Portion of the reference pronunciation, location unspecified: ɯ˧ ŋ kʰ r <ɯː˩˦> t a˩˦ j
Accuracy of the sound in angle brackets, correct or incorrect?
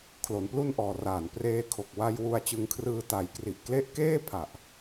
incorrect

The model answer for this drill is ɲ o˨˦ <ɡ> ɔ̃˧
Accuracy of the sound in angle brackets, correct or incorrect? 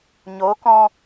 incorrect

